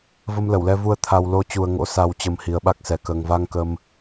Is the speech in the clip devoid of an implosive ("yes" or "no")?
no